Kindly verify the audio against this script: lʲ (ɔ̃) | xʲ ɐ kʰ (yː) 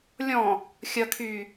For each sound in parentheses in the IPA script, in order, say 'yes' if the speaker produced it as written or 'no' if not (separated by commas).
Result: yes, yes